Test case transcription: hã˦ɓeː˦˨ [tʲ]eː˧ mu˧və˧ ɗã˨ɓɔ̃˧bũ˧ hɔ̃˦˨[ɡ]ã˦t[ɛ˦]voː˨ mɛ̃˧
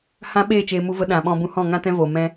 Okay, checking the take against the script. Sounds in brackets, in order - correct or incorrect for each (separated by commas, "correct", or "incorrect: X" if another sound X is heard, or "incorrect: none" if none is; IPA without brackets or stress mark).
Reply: incorrect: t͡ʃ, incorrect: ŋ, incorrect: ɛ̃˦